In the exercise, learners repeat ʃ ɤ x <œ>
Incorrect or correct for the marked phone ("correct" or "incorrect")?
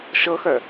correct